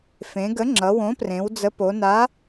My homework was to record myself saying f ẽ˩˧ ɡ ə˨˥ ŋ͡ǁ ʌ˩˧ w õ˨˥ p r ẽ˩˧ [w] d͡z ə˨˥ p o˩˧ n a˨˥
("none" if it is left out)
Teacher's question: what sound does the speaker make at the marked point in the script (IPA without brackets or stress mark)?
w